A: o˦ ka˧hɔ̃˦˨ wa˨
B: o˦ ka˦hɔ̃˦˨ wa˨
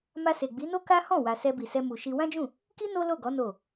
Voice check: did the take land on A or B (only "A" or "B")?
B